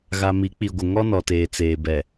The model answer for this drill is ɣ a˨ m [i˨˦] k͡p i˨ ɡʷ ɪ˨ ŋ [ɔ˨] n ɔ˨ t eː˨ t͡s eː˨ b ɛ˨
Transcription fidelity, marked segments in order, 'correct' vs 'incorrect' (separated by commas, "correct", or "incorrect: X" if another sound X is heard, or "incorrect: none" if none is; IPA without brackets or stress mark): correct, incorrect: ɔ˦